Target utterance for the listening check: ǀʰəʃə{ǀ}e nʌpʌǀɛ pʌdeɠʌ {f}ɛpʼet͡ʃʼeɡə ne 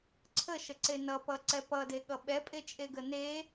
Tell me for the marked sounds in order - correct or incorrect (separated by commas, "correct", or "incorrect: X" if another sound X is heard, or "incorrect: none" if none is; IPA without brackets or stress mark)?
correct, incorrect: ɓ